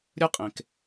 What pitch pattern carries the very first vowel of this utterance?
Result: high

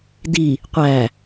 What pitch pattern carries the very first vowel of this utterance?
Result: low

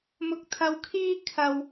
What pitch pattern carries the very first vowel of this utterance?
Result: low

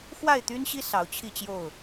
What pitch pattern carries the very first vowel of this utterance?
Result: falling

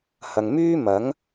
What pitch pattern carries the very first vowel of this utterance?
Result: low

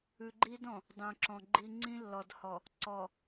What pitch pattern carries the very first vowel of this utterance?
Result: low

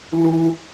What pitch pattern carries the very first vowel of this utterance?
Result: high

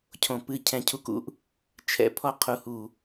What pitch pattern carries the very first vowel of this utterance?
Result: low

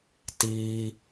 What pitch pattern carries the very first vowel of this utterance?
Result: high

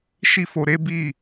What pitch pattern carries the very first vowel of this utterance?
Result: high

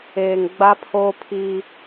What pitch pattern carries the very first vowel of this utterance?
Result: low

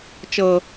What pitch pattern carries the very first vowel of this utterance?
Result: low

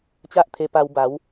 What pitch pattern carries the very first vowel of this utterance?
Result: high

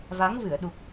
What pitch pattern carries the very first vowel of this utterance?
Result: rising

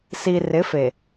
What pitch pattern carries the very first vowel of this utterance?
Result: low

